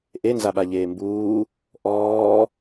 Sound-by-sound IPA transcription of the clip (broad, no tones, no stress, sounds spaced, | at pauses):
ʔ e n z a ɓ a ʎ eː m b uː | ʔ ɔː